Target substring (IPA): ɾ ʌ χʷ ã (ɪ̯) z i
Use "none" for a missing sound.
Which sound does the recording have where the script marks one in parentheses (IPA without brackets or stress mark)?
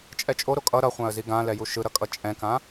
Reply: ə̯